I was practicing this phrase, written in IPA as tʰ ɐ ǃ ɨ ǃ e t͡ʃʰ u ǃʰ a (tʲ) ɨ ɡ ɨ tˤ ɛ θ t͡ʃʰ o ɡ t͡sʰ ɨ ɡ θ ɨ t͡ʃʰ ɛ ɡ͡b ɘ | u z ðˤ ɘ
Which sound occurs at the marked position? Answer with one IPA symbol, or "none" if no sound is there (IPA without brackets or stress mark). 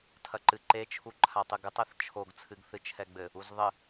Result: tˤ